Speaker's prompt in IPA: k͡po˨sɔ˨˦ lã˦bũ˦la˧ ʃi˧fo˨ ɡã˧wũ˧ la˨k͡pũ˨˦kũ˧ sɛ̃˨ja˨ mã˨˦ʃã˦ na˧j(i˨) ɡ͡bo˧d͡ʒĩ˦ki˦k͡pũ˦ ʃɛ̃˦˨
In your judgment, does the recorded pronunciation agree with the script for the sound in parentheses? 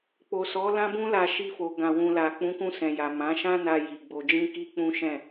yes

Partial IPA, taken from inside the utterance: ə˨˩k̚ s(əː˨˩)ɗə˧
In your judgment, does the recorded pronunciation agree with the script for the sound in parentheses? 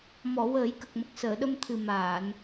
no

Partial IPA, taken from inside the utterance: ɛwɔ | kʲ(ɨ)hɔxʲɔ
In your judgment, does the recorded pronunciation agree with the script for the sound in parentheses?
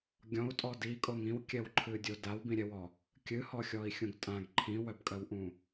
yes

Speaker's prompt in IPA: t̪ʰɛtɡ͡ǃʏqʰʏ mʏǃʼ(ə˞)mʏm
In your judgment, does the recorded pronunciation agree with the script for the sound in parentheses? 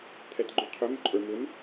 yes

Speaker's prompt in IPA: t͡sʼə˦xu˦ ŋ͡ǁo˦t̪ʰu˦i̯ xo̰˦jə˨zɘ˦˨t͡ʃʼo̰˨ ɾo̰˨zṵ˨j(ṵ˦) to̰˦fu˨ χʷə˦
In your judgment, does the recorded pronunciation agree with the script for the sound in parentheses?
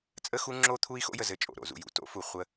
no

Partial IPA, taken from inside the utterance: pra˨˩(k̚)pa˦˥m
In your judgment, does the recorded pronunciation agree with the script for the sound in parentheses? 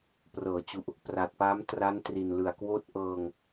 no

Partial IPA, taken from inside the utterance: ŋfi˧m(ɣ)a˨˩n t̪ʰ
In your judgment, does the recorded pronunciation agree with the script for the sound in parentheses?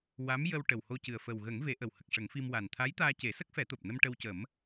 no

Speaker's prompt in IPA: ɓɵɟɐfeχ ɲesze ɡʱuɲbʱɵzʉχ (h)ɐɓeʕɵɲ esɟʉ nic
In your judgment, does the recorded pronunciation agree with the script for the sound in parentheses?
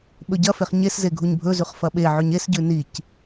no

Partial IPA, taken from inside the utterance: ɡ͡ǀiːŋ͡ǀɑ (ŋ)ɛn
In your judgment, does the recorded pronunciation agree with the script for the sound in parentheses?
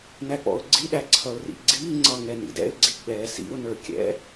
yes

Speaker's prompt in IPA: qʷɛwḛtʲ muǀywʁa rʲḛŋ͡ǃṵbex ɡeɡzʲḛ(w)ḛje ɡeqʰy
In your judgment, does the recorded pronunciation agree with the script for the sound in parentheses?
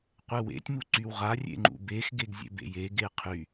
no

